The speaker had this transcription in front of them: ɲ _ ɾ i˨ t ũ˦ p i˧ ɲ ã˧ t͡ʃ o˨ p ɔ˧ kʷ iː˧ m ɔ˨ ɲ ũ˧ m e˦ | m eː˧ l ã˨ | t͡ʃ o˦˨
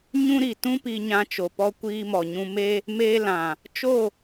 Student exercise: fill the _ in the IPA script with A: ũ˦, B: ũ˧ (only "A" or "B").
A